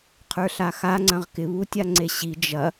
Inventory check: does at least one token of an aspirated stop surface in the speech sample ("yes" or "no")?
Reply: yes